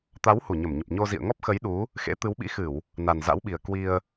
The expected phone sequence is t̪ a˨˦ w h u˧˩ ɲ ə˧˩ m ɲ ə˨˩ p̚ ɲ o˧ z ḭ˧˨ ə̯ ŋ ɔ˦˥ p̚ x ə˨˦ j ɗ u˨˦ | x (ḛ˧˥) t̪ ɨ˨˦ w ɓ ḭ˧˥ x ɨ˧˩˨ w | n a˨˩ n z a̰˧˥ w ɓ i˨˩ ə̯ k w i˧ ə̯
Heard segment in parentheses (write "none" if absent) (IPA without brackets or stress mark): ḛ˧˥